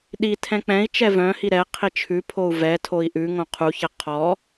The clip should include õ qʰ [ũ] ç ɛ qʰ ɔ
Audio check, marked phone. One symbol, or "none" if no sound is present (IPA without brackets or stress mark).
u